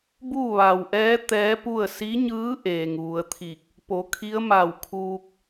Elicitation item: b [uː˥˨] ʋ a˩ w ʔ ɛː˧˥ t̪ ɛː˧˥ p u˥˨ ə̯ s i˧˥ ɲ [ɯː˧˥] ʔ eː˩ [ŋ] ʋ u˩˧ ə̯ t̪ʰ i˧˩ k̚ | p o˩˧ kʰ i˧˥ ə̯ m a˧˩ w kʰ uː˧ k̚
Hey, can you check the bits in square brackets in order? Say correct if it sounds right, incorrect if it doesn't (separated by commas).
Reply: correct, correct, correct